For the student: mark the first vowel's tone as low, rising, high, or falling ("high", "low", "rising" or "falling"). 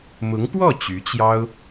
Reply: rising